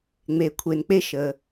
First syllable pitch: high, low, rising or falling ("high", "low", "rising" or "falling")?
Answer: low